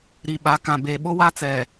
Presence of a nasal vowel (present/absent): present